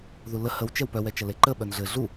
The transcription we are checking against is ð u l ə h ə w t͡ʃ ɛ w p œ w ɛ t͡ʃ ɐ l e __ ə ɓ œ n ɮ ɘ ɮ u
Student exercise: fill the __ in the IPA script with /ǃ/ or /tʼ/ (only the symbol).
ǃ